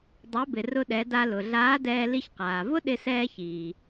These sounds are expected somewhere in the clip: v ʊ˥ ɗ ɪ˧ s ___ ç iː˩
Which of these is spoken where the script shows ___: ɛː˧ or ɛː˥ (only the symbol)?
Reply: ɛː˧